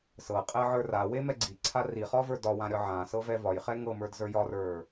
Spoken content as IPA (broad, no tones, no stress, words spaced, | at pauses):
sɤ qʼɛʕə˞rawe mɛɡ͡ǀiǀʰa riχɒvə˞ dɒwã ɾʲɒʕã sɤvɛvɒjχɛ ŋɤmə˞dzə˞ jɒrə˞